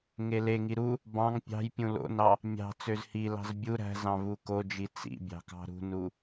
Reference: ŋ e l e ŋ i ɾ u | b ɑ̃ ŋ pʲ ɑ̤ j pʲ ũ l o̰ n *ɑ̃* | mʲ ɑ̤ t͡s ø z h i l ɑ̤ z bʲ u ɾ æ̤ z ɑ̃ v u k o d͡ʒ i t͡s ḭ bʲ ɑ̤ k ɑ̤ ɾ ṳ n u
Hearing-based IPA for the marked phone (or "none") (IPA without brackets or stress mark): ɑ